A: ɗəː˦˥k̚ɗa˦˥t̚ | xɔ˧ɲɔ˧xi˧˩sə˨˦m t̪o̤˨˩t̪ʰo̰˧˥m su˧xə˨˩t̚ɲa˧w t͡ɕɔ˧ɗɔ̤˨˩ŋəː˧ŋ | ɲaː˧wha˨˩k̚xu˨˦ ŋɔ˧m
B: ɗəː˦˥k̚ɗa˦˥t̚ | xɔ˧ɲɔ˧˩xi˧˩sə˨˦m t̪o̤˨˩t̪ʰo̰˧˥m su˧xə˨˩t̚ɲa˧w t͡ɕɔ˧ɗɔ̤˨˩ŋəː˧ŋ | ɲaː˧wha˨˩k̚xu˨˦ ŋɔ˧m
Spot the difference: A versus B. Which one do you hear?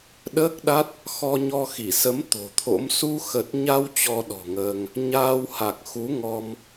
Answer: A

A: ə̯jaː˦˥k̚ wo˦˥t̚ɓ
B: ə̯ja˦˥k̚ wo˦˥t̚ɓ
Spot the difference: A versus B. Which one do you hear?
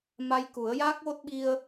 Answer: A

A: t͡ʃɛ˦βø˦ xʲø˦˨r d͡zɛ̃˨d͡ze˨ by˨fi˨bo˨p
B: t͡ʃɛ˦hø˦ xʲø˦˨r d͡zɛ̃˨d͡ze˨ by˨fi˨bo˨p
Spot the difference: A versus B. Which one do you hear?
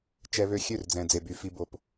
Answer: A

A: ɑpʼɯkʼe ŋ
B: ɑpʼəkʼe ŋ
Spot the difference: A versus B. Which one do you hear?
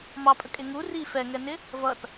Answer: B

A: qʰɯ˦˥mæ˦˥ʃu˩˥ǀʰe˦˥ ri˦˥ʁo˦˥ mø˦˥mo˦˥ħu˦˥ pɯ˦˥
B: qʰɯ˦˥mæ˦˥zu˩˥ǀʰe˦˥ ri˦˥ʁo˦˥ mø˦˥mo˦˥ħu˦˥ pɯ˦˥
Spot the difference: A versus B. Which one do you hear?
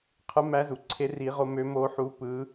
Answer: B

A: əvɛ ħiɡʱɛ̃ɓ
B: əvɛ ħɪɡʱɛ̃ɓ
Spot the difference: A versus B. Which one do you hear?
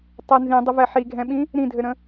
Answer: A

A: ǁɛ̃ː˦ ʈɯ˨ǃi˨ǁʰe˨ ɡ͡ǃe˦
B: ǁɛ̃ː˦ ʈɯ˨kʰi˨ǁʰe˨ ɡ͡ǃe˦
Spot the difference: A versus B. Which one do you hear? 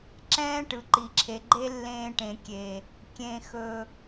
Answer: A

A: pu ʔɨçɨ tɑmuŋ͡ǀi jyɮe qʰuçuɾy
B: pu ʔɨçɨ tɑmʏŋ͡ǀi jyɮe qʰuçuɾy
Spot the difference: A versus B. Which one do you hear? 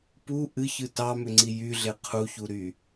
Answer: B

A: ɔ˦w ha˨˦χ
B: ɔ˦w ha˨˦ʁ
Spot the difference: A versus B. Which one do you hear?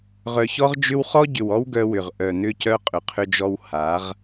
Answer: B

